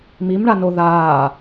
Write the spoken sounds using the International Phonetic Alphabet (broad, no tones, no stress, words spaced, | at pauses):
mimɳano ðaː